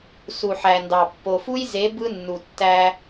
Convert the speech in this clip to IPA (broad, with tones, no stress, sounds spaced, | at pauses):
s u˨ ħ æ˨ n d ɑ˨ pː o˨ f u˦ j z e˨˦ b ɯ˦ nː u˨ tː æ˦